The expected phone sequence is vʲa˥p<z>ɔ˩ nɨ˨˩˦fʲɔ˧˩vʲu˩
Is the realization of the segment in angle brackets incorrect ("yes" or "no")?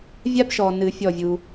yes